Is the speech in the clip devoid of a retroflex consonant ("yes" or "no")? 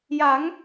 yes